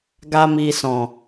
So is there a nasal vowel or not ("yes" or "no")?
yes